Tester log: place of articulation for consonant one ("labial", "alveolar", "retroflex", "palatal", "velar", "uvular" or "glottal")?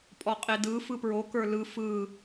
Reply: labial